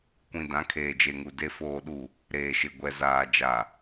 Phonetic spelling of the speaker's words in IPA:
kʷ ĩ˨ d ã˨˦ kʰ eː˨ d͡ʒ e˨ ŋ u˨ d e˨ f oː˨ ɗ u˨ | ɾ eː˨ ʃ ɪ˨ ɡʷ ɛ˨ z aː˨ d͡ʒ a˨

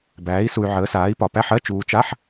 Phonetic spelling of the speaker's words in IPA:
b æː˩˥ i̯ s u˨ y̯ ʕ əː˩˥ s aː˩˥ i̯ p ɒ˨ p æ˧˥˧ ħ ɜ˧˥˧ t͡ʃ uː˨ t͡ʃ a˧˥˧ ħ

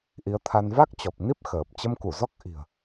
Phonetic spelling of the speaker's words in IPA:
ʔ i˨˦ ə̯ t̪ʰ a˧ n v a˦˥ k̚ t͡ɕ ɔ˨˩ p̚ n i˦˥ p̚ x əː˨˩ p̚ t͡ɕ ə˧ m k u˧˩ z ɔ˦˥ k̚ ʔ i̤˨˩ ə̯

